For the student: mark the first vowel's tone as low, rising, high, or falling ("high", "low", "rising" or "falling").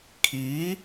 rising